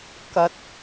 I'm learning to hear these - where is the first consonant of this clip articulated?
velum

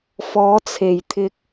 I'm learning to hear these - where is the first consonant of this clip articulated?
lips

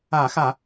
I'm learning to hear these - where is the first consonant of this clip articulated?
velum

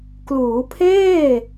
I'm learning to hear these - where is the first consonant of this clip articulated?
velum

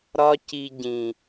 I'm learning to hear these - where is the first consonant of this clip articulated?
tongue tip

